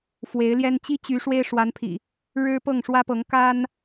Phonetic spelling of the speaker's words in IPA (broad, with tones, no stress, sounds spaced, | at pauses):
f w e˨˦ ɪ̯ l j ɛ˦ n t͡ɕ i˦ t͡ɕ y˨˦ ʂ w e˦ ɪ̯ ʂ w a˨˦ n pʰ ḭ˨˩ | ɻ ɻ̩˦ p ɤ˥˨ ŋ ʂ w ä˦ p ɤ˨˦ ŋ k a˦ n